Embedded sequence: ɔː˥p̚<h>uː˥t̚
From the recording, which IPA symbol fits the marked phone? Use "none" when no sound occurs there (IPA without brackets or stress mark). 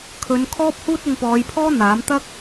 h